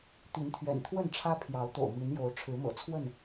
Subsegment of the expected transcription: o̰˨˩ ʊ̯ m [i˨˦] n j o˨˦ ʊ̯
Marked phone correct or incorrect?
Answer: correct